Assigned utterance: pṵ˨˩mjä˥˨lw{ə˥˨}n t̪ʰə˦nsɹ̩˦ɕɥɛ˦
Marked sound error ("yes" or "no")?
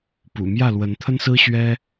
yes